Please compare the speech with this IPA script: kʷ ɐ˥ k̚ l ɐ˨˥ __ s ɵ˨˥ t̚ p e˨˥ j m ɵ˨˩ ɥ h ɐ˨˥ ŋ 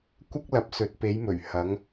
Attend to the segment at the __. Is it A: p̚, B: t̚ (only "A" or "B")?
A